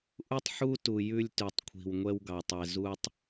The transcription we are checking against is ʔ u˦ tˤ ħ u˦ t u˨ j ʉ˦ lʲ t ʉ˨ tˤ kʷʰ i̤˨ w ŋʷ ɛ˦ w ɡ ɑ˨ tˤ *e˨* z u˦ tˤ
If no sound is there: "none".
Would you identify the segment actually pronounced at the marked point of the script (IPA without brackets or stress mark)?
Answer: ɛ˨